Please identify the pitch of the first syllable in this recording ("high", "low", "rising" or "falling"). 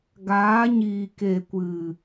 rising